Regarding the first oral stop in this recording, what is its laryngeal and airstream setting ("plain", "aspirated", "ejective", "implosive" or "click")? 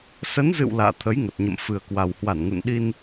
aspirated